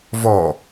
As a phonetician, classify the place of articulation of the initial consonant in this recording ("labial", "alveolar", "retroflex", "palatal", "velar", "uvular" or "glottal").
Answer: labial